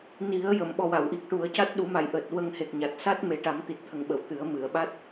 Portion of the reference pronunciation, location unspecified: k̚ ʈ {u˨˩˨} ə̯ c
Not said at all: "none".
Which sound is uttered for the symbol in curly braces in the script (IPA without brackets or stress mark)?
u˨˩˦